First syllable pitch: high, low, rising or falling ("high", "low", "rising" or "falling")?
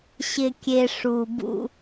low